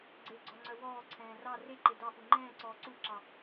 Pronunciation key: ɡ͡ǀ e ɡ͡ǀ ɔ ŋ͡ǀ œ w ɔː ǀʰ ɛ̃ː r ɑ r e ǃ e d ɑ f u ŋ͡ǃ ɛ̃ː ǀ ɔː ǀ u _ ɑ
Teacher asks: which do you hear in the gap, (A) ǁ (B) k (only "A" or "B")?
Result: A